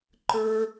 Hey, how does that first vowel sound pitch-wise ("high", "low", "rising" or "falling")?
high